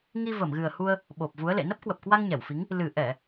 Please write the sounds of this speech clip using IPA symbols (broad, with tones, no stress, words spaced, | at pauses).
ŋi˧ və˧˩mɣɨ˨˩ə̯hu˧ə̯ | ɓo˨˩p̚vu˨˦ə̯lḛ˧˨ nə˦˥p̚kwə˨˩p̚kwa˧ŋ ɲɛ˧˩wfi˨˦ŋ | lɨ˨˩ ʔɛ˧˩˨